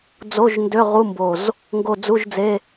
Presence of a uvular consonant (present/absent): present